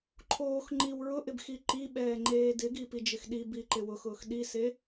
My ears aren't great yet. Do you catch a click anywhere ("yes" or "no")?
yes